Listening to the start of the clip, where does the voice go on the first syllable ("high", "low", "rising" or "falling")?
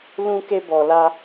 high